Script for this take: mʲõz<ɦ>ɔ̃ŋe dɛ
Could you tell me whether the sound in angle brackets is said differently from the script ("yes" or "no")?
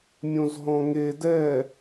no